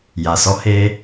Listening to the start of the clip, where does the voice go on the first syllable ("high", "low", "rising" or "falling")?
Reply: low